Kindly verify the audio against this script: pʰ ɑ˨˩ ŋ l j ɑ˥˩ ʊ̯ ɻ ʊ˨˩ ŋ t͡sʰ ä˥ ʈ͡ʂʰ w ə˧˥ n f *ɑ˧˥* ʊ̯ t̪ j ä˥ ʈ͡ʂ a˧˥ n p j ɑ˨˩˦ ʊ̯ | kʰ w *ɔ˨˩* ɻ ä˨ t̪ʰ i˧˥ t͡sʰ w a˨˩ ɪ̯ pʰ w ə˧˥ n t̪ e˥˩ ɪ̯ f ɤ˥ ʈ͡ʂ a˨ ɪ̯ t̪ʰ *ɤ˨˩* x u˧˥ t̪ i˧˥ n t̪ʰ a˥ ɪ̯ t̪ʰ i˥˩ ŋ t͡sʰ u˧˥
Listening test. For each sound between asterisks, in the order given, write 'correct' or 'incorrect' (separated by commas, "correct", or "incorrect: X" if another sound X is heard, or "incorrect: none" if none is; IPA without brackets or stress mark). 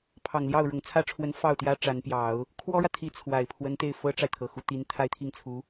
incorrect: ɑ˥˩, incorrect: ɔ˥, correct